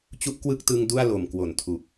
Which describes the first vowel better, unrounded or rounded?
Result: rounded